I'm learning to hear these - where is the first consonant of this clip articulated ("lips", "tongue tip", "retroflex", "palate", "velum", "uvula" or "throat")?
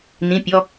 tongue tip